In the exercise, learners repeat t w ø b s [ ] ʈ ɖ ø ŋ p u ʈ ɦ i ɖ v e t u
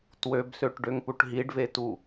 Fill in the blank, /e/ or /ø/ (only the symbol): ø